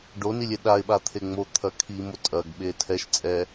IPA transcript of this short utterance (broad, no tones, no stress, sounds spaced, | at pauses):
ɖ o n i lʲ e ɗ a ɪ̯ ɓ a t̪ʰ e ŋ͡m o t̪ʰ ɐ kʰ i m o tʼ ɐ ɡ ɓ e tʰ ɛ ʃ t͡sʼ ɛ